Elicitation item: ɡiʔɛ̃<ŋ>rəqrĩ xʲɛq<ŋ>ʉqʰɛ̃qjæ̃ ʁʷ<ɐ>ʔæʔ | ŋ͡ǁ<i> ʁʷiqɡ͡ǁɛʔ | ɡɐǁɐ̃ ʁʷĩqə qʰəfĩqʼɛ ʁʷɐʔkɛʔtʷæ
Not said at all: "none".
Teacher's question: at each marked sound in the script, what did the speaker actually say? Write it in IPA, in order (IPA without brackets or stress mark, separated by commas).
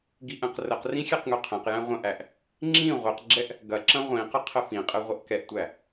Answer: q, ŋ, ɐ̃, ĩ